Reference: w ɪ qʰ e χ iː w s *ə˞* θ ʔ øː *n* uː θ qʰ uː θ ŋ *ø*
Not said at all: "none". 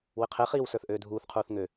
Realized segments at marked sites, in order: ə˞, dʱ, ø

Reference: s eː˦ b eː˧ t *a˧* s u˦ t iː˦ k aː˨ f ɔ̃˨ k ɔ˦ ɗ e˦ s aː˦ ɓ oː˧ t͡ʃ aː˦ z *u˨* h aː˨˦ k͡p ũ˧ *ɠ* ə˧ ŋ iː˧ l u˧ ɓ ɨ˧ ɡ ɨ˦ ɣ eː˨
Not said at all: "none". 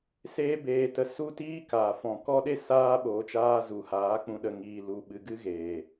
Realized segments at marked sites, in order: ə˧, u˨, ɗ

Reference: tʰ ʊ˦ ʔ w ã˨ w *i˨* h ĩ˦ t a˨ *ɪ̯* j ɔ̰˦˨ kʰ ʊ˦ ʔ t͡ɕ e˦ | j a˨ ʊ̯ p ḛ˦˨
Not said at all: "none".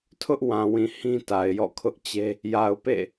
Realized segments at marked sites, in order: ĩ˨, ɪ̯

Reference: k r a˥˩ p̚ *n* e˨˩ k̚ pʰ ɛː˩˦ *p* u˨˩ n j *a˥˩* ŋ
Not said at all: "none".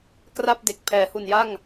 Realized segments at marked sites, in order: d, h, a˥˩

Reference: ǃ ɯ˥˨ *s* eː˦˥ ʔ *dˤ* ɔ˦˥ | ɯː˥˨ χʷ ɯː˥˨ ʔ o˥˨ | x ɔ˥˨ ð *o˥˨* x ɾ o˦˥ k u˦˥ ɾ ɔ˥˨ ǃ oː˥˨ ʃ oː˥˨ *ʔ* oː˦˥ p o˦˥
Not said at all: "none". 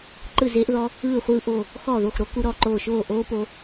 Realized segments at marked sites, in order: z, ð, o˥˨, ʔ

